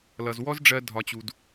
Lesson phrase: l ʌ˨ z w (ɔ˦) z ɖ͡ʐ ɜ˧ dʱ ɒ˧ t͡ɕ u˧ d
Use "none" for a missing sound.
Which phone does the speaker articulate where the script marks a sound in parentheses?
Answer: ɔ˦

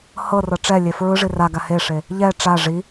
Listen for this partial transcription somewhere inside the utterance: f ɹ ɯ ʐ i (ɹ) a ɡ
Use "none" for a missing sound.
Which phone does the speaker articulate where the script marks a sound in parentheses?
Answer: r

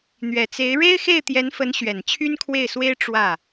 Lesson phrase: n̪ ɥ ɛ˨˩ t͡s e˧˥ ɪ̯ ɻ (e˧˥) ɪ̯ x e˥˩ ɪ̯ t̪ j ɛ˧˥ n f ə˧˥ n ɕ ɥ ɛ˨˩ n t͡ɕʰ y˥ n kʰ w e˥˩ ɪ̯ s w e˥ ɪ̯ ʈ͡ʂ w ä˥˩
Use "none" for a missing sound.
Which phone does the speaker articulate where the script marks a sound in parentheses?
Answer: e˥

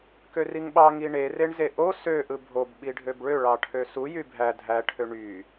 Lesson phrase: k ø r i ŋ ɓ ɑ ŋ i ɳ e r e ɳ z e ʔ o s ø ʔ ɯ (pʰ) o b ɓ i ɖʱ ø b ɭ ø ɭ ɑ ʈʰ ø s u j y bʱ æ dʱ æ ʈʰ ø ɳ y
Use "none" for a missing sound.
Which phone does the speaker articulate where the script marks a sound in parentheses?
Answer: bʱ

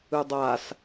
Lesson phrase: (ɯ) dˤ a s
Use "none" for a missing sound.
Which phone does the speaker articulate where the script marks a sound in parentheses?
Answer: ɯ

